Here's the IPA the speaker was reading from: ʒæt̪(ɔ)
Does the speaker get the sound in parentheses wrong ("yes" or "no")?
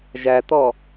no